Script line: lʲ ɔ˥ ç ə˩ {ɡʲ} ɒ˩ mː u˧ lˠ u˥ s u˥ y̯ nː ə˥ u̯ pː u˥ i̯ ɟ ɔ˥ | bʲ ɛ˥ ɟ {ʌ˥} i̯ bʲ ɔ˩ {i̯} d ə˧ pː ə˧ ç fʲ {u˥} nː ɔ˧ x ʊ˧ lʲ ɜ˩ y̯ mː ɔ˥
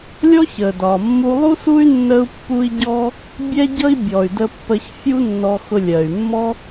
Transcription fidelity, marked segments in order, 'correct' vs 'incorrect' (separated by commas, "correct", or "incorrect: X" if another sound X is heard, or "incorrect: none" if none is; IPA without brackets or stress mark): incorrect: d, correct, incorrect: y̯, correct